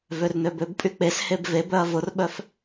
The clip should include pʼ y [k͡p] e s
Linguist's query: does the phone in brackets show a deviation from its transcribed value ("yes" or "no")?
no